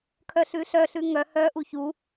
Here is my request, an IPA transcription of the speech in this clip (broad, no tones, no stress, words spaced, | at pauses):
kʰœɬʉɬœɬʉ ŋœ hœʔu çu